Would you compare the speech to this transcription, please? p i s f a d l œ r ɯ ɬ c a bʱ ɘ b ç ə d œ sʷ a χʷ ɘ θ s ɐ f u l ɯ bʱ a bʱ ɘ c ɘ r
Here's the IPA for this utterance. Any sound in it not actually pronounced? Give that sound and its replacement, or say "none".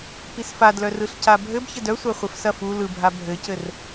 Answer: θ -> f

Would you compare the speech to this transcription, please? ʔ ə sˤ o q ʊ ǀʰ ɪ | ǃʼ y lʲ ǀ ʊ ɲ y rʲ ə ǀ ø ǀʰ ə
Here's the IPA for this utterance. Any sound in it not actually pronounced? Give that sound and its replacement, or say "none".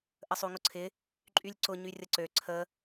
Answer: q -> ŋ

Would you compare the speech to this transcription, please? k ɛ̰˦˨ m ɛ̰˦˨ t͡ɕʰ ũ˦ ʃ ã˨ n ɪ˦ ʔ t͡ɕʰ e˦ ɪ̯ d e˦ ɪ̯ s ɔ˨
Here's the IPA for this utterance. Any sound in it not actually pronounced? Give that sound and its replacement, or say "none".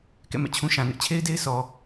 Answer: none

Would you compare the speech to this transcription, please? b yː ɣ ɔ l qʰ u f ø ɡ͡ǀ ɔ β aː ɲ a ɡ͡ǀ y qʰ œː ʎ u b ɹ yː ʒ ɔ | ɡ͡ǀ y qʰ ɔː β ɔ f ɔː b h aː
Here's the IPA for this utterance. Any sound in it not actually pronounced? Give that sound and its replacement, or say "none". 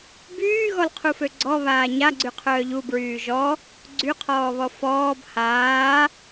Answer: none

